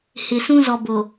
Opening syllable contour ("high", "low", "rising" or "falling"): low